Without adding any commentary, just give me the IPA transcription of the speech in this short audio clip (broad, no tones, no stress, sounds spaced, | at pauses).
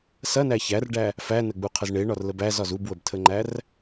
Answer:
s ɐ n æ ç æ r ɖ æ | f æ n ə ɡ͡b u qʰ ə z ɳ e ɳ ɒ r l ə b æ z ɒ z u b w ə b tʰ ə ŋ͡ǃ æ r